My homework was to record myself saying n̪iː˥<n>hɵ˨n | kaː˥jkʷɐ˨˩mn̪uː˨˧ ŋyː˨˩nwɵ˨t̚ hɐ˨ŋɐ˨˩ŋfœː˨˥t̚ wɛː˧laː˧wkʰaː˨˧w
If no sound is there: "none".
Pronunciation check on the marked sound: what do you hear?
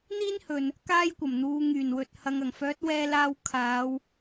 n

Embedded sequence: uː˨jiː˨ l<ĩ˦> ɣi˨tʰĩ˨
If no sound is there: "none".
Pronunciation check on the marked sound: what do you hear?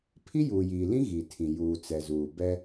ĩ˦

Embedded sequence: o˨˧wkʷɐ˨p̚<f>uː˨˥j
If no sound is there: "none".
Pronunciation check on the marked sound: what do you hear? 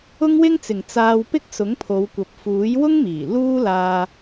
f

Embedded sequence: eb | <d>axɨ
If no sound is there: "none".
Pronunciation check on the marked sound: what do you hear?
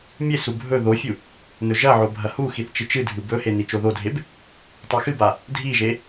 tˤ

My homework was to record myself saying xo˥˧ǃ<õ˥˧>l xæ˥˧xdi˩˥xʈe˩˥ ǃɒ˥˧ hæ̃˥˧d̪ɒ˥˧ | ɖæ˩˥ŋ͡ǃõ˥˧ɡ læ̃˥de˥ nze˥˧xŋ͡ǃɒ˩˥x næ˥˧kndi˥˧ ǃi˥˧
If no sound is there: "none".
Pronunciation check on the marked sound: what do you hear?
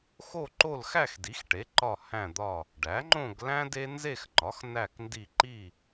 o˥˧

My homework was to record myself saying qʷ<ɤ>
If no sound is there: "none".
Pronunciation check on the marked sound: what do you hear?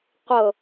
ɤ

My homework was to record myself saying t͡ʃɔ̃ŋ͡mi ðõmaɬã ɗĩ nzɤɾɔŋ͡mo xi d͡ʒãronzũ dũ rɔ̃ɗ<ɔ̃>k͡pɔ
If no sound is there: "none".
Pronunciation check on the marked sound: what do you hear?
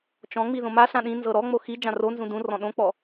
õ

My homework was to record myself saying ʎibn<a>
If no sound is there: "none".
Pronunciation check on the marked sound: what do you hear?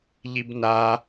a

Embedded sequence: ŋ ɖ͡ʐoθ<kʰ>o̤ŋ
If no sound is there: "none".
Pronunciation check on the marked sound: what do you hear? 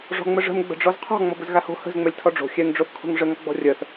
kʰ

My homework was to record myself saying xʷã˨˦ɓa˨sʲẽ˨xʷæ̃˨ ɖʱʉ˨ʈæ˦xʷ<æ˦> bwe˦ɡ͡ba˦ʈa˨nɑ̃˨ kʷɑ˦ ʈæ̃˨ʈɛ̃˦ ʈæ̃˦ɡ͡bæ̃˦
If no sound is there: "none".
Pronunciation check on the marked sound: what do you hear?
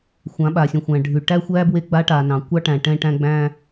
æ˦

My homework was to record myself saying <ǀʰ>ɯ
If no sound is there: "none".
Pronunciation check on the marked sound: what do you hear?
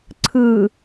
ǀʰ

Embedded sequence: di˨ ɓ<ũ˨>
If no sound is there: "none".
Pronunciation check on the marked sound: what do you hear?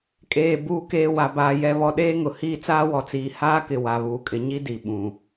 ũ˨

